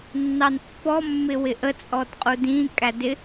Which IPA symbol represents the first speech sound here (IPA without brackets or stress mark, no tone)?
nː